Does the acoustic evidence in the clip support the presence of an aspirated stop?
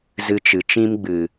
no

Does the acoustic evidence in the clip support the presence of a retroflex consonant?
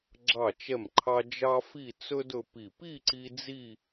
no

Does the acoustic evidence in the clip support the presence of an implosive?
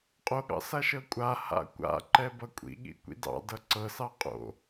yes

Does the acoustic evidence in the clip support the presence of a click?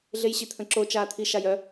yes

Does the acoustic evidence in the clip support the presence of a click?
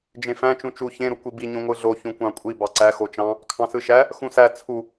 yes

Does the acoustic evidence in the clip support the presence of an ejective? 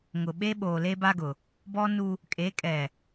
yes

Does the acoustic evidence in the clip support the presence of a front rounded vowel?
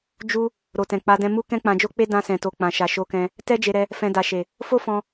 no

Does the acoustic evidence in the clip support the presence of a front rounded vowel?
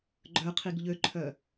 yes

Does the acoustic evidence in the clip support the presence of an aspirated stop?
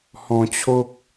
yes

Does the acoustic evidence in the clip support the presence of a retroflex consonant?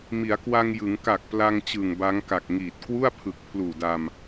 no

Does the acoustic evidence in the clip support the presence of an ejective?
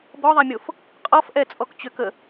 yes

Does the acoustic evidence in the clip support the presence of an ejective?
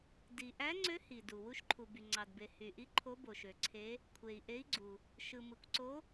no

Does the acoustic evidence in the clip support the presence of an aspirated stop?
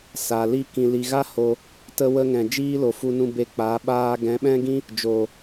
no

